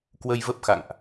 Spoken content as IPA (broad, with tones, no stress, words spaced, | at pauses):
kwə˧jvə˦˥p̚xa̰˧˨ŋʔ